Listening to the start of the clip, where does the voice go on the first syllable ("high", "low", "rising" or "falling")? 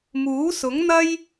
rising